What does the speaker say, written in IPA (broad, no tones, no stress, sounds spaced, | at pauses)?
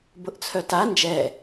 b ʊ ʔ t͡sʰ œ t a n d͡ʒ ɛ